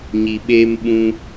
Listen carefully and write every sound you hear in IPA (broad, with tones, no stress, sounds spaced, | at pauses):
ɲ i˨ ɓ eː˧ m ɓ ũ˧